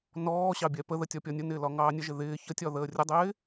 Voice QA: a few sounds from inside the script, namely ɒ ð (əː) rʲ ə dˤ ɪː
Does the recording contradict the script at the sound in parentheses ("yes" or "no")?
no